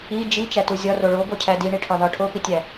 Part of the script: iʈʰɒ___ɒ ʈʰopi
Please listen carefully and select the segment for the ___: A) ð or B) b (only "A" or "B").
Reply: A